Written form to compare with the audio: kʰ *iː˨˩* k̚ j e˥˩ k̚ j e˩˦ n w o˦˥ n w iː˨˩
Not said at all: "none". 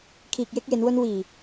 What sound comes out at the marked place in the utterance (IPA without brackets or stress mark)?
iː˨˩